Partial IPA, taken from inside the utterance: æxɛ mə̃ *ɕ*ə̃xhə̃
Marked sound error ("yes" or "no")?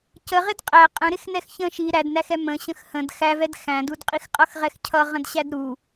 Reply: no